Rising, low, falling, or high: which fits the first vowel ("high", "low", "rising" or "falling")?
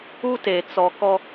high